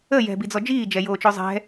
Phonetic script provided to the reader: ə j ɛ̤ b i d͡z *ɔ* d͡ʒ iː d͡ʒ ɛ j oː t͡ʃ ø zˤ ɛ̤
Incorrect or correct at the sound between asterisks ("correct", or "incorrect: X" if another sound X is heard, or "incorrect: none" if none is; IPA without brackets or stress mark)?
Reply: correct